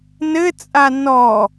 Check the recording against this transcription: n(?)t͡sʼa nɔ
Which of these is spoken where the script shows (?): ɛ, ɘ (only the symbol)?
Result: ɘ